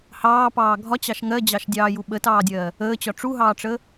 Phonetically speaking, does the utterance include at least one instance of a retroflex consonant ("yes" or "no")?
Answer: yes